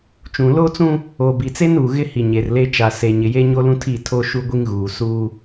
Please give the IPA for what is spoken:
t͡ʃũ˨ loː˦t͡sũ˦ | oː˨bi˨t͡se˦n uː˨ ɣɪ˦ hi˨ɲe˨rle˦ t͡ʃa˨ se˨ ɲɪ˨je˦ɲo˦lũ˦ tʰi˦˨tʰo˦ ʃu˦ɡʷi˦ŋɣuː˨ suː˦

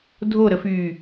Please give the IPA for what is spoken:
dʱoɾəfyː

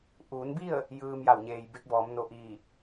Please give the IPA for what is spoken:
ʔuː˩˧nbi˥˨ə̯ | jɯː˧m ja˧˩wɲeː˩jbe˧˥k̚bɔː˩˧m no˧˩ʔiː˧˩

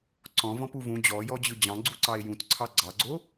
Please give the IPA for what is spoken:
ǀɔ̃vɔ̃pu vũ d͡ʑɔjɔd͡ʑɯ d͡ʑɑ̃ɡ͡ǀuǀɑe̯ jũtǀʰɑ ɡ͡ǀɑɡ͡ǀo

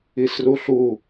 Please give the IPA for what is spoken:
isruɬu

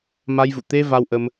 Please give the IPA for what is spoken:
ma˧jvṵ˧˨ t̪e˧ va˧wʔə˧m

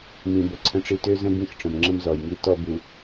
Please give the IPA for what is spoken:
mĩ˨bə˨ǀʰə̃˦ʈ͡ʂi˦ tø˦zə̃˦ bĩ˦xʈ͡ʂə̃˨mŋ͡ǁə̃˦m zɔ˨jŋi˦ tɔ˦bu˨

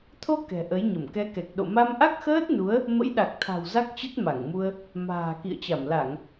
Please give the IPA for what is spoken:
t̪ʰo˧ kɛ̤˨˩ʔə˨˦jɲə˧˩m kɛ˨˦kɛ˨˩k̚ ɗo̰˧˨ma˧mʔa˦˥k̚xəː˦˥t̚ nu˨˦ə̯ | mə̰˧˥jɗa˨˩k̚t̪ʰa̤˨˩w za˦˥k̚t͡ɕə˦˥t̚ ma˧˩ŋmu˧ə̯ | ma̤ː˨˩ kḭ˧˨ə̯t͡ɕa˧˩mla˧˩˨ŋ

